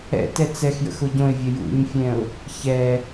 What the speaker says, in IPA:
ɛ̰ t ɛ t͡s ɛ x j ə̰ x o ɟ õ ɪ̯ vʲ ə j ṵ ɲ fʲ ɛ̃ ʊ̯ | ç ɛ

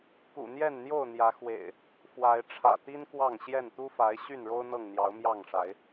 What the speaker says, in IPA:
k ṵ˨˩ n̪ j ɛ˥˨ n n̪ j o˥˨ ʊ̯ n̪ j ä˨˦ x w ḛ˨˩ ɪ̯ | f w a˨˦ ɪ̯ ʈ͡ʂʰ ä̰˨˩ t̪ i˦ n k w ɑ˥˨ ŋ ɕ j ɛ˥˨ n t̪ u˦ f a˨˦ ɪ̯ ɕ y˥˨ n ɻ o˦ ʊ̯ n̪ ɤ˥˨ ŋ n̪ j ɑ˨˦ ʊ̯ m j ɑ˥˨ ŋ ʂ a˨˦ ɪ̯

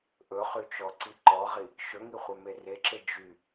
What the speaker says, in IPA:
ʔ ɵ χ y t͡ʃ ɔ ǀ i ǃ ɔ ʁ i | ʃ ɵ ŋ i χʷ œ m e r e ǁ e d͡ʒ y

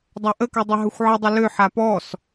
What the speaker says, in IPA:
dˤ a ʔ ə k ø dˤ ə ɦ ɵ xʷ ʕ ə dˤ ə l ø ħ a p ɔ s

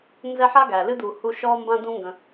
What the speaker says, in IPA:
n z ɛ˦ ħ a˥ ɡ æ˩ l ɨ˥ d̪ u˨ h u˦ ʃ ɔ˥ m b ã˦ d̪ ũ˦ ŋ ɡ ə̃˨

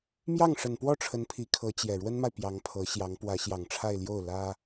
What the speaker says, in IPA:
m j ɑ˥˩ ŋ ʂ ə˨˩ n p w ɔ˥˩ ʈ͡ʂʰ ə˧˥ n pʰ i˧˥ kʰ ɤ˧˥ t͡ɕ j ɛ˨˩ ɻ w ə˥ n m a˨ ɪ̯ p j ɑ˧˥ ŋ pʰ ɤ˧˥ ɕ j ɑ˧˥ ŋ p w ä˧˥ ɕ j ɑ˨˩ ŋ ʈ͡ʂʰ a˥˧ ɪ̯ l j o˥˩ ʊ̯ l ä˥

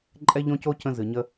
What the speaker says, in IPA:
ǃʼ ɛ˦ ʎ õ˦ c o˦ c ə̃˧ z ɨ˨ ɲ ə˧

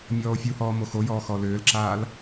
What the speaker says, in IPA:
mʲ ɔː o̯ fʲ u h ɔː m o x o j ɔː x ɔ l ʏː l ǁ aː l

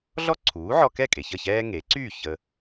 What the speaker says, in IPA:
ɮ ɔ˥ ǀʰ uː˩˥ ʕ ɔ˧ k ɛ˥˩ kʼ e˩ ç ə˥˩ ç ɛː˥ ŋ e˩˥ ǀ yː˥˩ ç ə˧

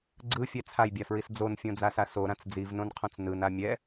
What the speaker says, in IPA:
ɡ͡ǀ ɯ fʲ ɛ t͡sʰ a j bʲ a f ɹ i s d͡z o n fʲ õ d͡z a s a s o ɾ ã t͡s d͡z i v n õ n qʰ õ t͡s n ɯ n a mʲ ɛ

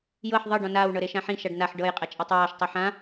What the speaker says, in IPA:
j ɤ ħ ðˤ ɤ ɖ ɔ̃ n aː w ɳ ɤ ɾ e ʃ ã ħ ĩ ʃ a ɖ n a ħ ɖ ɤ j qʼ ɛ t͡ʃʼ a tˤ w ɔː ʃ tˤ u ħ ã

